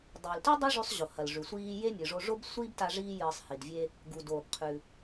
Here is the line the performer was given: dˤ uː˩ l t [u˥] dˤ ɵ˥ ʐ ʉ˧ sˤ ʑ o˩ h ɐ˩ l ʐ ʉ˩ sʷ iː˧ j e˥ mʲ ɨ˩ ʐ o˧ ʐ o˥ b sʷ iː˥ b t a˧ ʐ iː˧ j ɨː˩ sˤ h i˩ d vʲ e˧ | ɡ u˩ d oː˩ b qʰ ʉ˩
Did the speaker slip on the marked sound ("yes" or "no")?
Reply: yes